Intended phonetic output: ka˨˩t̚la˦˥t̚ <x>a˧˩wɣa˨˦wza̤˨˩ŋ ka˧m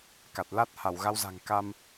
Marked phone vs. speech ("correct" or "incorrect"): incorrect